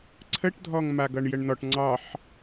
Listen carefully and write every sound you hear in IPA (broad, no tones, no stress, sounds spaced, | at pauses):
ǀʰ ə ʈ dʱ ɔ ŋ m a ɡ ʌ ɳ j ə ɳ n ɔ ʈ ŋ͡ǀ ɑ ħ